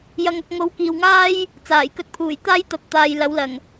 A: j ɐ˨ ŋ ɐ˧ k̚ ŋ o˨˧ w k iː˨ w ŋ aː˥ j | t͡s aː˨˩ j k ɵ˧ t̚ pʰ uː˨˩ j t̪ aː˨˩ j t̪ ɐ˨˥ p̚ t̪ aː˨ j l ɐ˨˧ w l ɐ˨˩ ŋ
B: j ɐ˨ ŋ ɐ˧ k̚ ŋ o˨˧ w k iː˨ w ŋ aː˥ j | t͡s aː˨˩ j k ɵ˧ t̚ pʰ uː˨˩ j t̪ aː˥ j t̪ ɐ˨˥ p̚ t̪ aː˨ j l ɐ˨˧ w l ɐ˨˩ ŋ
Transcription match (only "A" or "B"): B